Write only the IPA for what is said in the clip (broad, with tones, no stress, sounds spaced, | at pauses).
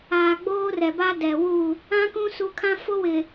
aː˨ ɡ͡b oː˦ r ɛ˨ b a˦ d ɛ˨ w u˦˨ | ã˦ k ũ˦ s u˨˦ kʰ ã˦ f o˦ w ɪ˨